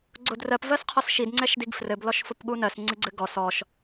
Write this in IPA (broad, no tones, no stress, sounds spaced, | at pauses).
ɡ͡ǀ ʊ d r ɜ p v ɜ s qʰ ɔ s ʃ i d ŋ͡ǀ ɛ ʃ d i ɡ f r ɘ b l ɔ ʃ f ʊ p ɠ u n ɜ s ŋ͡ǀ ɨ ɡ͡ǀ ɘ ɡ ɔ s ɔ ʃ